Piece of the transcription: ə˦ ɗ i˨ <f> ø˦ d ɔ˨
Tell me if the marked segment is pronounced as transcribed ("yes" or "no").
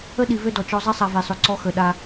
no